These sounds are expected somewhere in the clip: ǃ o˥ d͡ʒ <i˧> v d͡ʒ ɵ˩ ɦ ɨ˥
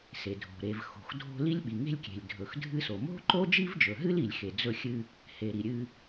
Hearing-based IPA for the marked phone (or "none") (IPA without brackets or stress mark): i˥